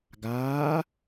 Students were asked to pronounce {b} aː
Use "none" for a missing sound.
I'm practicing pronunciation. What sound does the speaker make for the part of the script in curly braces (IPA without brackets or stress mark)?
ɡ